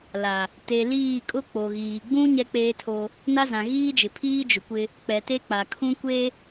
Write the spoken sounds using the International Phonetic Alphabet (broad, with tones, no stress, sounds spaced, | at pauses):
l a˨ | t e˨ l iː˦˨ kʼ ʊ˦ k͡p o˨ ɣ iː˨ ɡ͡b ũ˦ ɲ ɛ˦ k͡p eː˦ tʰ o˦ | n a˦ z ã˨ ɣ iː˦ d͡ʒ ɪ˨ pʰ iː˦ d͡ʒ ʊ˨ kʷ ɪ˦ | k͡p ɛ˨ t e˦ k͡p a˨ kʰ ũ˦ kʷ e˦